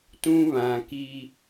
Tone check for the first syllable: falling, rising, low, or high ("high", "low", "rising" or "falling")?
high